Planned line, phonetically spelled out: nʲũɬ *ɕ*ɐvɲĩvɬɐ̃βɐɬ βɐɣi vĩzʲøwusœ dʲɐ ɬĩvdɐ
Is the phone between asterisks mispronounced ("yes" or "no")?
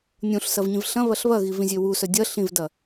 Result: yes